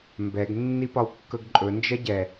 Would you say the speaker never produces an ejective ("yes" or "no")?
no